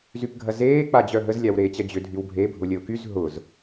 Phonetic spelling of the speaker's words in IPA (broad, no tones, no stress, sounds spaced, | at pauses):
z y p ɡʱ ɐ z eː k͡p a d͡ʑ œ ɦ ə z lʲ a w ɾ eː t͡ɕ ɐ d͡ʑ ʏ dʱ y w bʱ e bʱ ʊ lʲ ə ʊ̯ k y z ɦ ʊ z